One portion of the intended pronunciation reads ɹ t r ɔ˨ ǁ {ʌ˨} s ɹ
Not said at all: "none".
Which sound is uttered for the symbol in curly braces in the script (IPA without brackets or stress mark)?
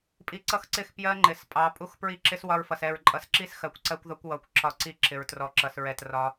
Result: ʌ˨